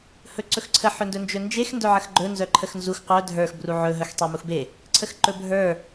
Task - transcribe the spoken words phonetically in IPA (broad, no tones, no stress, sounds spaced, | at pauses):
h ɵ ǀ ɵ x ǀʰ ə ħ ɵ n d ɵ n d͡ʒ ɵ n d͡ʒ e x n d œ ʕ ə x ɡ͡ǃ ɵ n z œ ǃʰ ə x n z u x qʷ œ dʱ ə˞ x b r u ʕ ɵ ɦ œ x tˤ e m u x b e | ǀʰ ə x ǃ ɵ bʱ ə˞